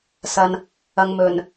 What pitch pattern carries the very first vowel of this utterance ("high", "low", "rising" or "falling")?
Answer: low